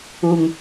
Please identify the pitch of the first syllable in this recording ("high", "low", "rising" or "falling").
low